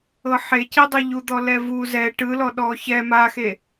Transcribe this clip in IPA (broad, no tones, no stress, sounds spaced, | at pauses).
ɤ ħ e c i dˤ o ʎ u d̪ ɔ l ɛ v u z ɛ ʈ ɯ l ɔ ɗ ɔ ç ɛ m a x e